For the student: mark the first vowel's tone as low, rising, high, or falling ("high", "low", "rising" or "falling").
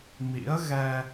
rising